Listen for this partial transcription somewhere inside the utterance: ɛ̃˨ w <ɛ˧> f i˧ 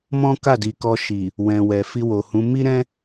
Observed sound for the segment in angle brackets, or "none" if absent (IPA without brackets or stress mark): ɛ˨